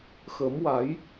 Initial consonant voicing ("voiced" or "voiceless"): voiceless